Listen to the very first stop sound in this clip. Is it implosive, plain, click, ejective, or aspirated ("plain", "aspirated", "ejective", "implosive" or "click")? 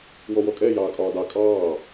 ejective